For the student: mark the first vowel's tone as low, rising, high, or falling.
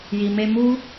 low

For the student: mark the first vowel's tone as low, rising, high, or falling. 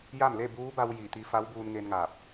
falling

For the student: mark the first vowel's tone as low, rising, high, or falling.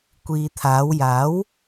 low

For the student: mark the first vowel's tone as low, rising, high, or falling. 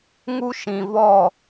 high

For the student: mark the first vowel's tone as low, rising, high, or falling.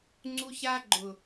high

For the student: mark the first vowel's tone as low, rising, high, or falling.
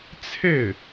falling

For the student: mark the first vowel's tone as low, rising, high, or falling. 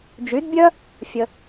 rising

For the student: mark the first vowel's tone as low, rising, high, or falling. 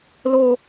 high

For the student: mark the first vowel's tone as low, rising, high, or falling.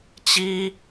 high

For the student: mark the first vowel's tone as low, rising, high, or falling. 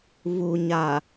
low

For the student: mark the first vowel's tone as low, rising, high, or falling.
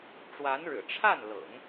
rising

